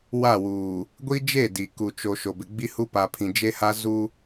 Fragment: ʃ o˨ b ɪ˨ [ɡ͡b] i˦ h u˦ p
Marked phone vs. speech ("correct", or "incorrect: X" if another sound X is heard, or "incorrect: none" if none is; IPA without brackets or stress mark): correct